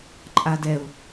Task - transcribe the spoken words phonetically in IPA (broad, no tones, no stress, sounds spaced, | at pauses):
ǃʼ a d ɛ ʊ̯